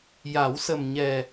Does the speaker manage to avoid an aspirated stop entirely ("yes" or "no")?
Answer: yes